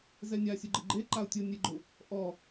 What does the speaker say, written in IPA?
z ɛ nʲ a sʲ o ɡ͡ǃ e ɡ͡ǃ e ǃ a ʊ̯ tʲ o nʲ e ɡ͡ǃ ʊ | ʔ ɔ

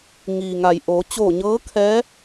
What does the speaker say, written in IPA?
ŋ iː˩ ŋ a˩ j ʔ oː˩˧ t͡ɕ oː˧˩ ɲ ɤː˧˥ kʰ ɛː˧˥

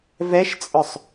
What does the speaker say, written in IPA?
v ɛ ʃ t͡sʼ œ sˤ

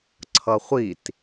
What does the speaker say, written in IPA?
ǀʰ ʌ χʷ i t

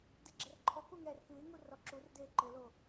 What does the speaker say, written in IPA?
d ɛ ɡ͡ǁ ɛ r ǃʰ ɔ k u ŋ ɛː r k ɨː ŋ u r ɔ ǁ u r d eː ǃ ɘ l o

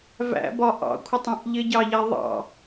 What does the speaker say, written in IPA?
v æ̰ b ɒ ʔ ɑ̰ kʷʰ ɪ tˤ æ̃ ʔ ʎ ɪ ɟ ɑ ʎ æ ðˤ ɑ̰

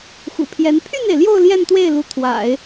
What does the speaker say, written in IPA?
x ṵ˨˩ pʰ j ɛ˧˥ n pʰ y˥˩ n e˩ ɪ̯ l j o˥˧ ʊ̯ l j ɛ˥˧ n t̪ w e˥˩ ɪ̯ l u˧˥ t̪ʰ w a̰˨˩˦ ɪ̯

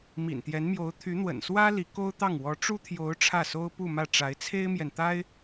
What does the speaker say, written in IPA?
m ḭ˨˩ n t̪ j ɛ˧˥ n m j o˧˥ ʊ̯ t̪ʰ y˧˥ n̪ w ə̰˨˩ n s w ä˥ l i˧˥ k o˥ ʊ̯ t̪ ɑ˥˩ ŋ w ɔ˧˥ ʈ͡ʂ u˥ t̪ʰ j o˧˥ ʊ̯ ʈ͡ʂʰ ä˥˩ s o˥ ʊ̯ p u˥˧ m ä˥˩ ʈ͡ʂ a˧˥ ɪ̯ t͡sʰ e˥ ɪ̯ m j ɛ˨ n t̪ a˥ ɪ̯

